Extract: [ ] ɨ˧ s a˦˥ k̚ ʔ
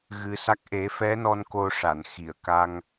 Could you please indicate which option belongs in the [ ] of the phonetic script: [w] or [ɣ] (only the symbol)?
ɣ